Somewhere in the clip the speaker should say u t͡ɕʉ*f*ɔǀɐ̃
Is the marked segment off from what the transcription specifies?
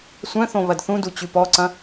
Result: yes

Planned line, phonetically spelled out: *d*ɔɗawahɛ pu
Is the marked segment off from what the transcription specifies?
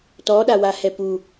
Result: yes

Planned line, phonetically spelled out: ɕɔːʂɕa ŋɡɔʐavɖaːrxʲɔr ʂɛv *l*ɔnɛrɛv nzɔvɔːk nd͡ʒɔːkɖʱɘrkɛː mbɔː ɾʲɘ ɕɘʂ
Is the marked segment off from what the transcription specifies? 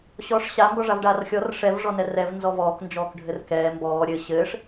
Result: yes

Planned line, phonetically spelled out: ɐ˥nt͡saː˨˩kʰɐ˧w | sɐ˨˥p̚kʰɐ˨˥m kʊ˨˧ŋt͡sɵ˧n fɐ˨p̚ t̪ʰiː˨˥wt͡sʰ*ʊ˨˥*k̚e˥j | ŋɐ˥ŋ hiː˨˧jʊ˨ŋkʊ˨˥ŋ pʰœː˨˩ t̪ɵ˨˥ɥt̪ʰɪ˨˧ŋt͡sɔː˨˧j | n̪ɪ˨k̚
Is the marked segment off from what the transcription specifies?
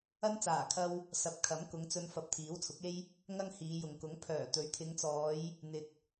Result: no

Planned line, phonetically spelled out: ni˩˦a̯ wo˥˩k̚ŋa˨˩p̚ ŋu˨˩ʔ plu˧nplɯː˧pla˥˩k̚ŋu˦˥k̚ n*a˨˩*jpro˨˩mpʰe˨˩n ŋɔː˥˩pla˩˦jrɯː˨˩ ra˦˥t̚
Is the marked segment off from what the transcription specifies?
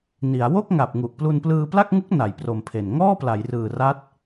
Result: yes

